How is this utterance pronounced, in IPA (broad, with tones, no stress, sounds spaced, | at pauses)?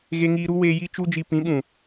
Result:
ɣ e˧ ŋ iː˧ ɾ u˦ w eː˧ j i˦ t͡ʃ u˦ d͡ʒ i˧ p ĩ˨˦ ɓ ũ˨